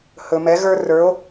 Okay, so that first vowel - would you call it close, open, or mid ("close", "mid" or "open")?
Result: mid